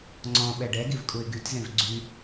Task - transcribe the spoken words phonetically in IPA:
ŋ͡ǀ ɔ̃ ɓ ɛ ɖ ɛ ɡ i v kʼ u ɪ̯ ɡ y t z ẽ v ɡ͡ǀ y

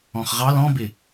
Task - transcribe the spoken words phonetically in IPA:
ɔ̃ χ ʁ ɑ l ɔ̃ b ɪ

